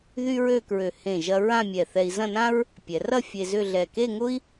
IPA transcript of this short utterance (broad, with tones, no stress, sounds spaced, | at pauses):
ð y˥ ɹ ø˥˧ k ɹ ø˧˩ h ẽ˧˩ ʒ ɐ˧ ɹ ã˥˧ mʲ ɛ˧˩ θ ɛ˧ i̯ z ɐ̃˥˧ n ã˥ ɹ | pʲ ɛ˩˧ r ɐ˥˧ fʲ e˧ z ʏ˥˧ ɮ ɛ˧˩ k e˥˧ ŋ ʊ˥ i̯